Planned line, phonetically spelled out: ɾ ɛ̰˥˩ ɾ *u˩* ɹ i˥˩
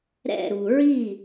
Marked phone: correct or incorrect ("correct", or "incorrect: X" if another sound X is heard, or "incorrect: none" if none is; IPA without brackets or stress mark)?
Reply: correct